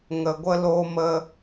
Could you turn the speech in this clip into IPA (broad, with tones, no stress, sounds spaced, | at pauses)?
ŋ ə˧ ɡʷ ə˦ l oː˦ m ə˦